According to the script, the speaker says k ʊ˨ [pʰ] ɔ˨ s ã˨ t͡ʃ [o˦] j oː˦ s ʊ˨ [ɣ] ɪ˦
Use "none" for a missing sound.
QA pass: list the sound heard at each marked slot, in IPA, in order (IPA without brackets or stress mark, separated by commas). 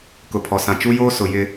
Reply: pʰ, u˦, j